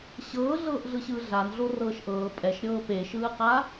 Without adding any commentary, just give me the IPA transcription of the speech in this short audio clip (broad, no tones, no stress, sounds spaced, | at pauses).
ɕ ɤː ɮ ɤː ʔ ɮ ɯ ɕ ɯː ɮ a n ɮ o r ɤː ʃ ʔ ɤː pʼ ɛ ʃ ɾʲ ɤː p e ʃ ɯː q a